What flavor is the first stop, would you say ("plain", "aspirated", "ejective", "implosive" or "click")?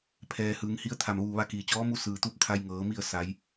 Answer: aspirated